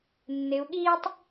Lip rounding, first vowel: unrounded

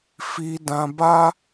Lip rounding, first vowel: unrounded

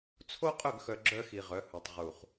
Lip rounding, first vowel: rounded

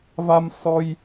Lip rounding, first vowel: unrounded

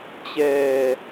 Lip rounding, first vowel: unrounded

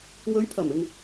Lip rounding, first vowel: rounded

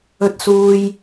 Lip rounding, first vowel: rounded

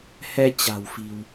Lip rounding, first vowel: unrounded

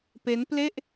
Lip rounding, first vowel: unrounded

